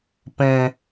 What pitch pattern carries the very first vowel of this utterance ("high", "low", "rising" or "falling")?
high